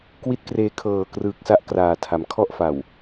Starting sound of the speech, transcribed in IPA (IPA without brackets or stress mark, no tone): k